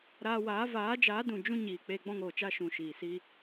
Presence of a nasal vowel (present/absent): present